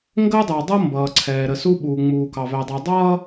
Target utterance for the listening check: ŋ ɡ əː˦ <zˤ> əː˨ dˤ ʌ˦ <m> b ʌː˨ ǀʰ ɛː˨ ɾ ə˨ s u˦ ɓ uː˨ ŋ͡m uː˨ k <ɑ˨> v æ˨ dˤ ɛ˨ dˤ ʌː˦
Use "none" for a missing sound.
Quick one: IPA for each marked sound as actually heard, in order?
dˤ, m, ɑ˨

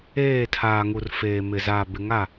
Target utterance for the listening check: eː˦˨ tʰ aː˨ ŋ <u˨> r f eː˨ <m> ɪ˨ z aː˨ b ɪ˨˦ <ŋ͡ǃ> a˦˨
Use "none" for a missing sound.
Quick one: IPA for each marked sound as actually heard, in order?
u˨, m, ŋ

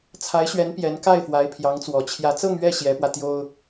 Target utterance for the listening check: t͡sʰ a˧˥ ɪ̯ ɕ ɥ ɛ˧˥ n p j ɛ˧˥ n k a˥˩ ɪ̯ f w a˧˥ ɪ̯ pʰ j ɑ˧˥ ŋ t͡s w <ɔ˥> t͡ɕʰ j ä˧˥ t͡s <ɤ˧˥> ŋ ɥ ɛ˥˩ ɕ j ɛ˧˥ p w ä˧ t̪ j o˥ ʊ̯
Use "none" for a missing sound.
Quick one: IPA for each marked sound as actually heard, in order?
ɔ˨˩, ɤ˥˧

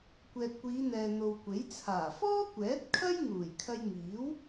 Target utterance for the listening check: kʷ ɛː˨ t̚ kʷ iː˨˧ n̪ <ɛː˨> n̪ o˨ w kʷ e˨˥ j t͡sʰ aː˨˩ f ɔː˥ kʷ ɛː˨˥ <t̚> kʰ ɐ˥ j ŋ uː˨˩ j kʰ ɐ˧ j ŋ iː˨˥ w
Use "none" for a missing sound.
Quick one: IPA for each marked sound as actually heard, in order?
ɛː˨, t̚

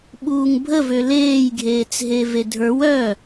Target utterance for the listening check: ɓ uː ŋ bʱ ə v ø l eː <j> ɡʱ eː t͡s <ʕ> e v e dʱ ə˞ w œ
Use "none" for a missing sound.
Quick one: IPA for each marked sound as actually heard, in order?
j, ɦ

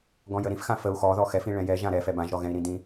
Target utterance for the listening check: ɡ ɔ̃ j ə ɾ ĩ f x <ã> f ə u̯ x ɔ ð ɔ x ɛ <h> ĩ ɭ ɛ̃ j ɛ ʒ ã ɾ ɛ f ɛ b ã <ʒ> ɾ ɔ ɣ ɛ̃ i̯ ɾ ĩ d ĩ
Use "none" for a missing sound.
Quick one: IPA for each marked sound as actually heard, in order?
ã, f, ʒ

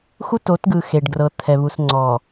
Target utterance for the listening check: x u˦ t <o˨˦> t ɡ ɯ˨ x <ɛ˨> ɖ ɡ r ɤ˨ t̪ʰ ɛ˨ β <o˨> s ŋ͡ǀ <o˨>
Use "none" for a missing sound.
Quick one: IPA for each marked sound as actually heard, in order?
o˨˦, e˨, u˨, ɔ˨

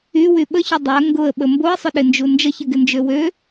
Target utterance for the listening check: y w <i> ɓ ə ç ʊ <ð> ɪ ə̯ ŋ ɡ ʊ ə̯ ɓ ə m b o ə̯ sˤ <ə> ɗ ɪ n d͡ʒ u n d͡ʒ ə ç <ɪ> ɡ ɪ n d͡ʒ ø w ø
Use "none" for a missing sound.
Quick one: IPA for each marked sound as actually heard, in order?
y, dˤ, ʊ, ɪ

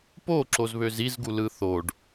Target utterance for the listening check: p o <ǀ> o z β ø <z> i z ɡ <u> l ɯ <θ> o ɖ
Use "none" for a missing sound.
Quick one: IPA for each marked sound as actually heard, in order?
ǁ, z, u, θ

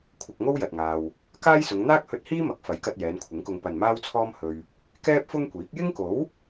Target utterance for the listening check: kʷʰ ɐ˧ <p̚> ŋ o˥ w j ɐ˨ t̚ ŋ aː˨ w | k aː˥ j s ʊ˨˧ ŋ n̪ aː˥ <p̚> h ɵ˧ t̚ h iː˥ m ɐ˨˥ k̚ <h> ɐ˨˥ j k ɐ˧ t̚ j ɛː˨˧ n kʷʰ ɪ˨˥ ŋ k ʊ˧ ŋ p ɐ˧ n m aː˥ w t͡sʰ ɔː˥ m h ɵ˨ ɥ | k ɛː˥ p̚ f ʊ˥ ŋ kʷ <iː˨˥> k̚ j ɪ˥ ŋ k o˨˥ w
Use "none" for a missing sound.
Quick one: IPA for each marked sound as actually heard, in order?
k̚, k̚, f, iː˨˥

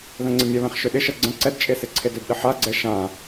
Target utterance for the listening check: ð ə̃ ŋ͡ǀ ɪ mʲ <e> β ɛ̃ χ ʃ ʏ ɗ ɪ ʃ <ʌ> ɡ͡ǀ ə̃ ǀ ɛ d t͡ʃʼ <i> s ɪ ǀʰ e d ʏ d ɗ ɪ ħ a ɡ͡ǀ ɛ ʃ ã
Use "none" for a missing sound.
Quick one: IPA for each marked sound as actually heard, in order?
ɛ, ʌ, e

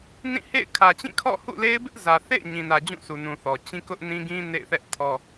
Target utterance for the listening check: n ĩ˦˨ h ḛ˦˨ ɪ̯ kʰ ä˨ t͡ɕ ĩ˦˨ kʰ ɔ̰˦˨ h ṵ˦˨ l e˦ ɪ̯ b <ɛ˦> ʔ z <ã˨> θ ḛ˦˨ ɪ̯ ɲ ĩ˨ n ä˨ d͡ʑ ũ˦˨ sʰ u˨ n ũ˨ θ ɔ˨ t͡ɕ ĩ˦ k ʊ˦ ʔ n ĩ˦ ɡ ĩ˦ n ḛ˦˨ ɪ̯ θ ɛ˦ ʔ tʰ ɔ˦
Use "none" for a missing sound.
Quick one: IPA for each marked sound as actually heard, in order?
ɪ˦, ä˨

